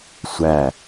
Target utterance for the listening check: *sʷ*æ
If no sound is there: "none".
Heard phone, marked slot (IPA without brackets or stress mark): sʷ